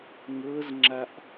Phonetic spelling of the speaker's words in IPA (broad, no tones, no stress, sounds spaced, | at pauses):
ŋʷ ɤ z ŋ͡ǁ a ʔ